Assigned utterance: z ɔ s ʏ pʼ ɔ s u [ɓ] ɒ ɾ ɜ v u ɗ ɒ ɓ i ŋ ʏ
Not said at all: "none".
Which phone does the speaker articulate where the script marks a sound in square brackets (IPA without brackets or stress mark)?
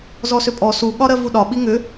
ɠ